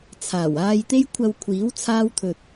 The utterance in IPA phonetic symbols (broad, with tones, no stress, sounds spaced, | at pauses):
t͡sʰ aː˨˩ w aː˧ j t̪ e˥ j kʷʰ ɐ˧ w kʷʰ iː˨˥ w t͡sʰ aː˥ w t̪ʰ ɵ˧ t̚